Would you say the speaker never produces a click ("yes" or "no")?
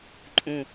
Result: no